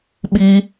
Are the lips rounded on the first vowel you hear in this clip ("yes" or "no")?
no